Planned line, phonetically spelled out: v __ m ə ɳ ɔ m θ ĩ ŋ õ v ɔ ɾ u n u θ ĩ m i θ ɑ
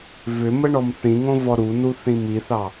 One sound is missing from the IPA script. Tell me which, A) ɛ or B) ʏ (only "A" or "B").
B